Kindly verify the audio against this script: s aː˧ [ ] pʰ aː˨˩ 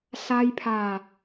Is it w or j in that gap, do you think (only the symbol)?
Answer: j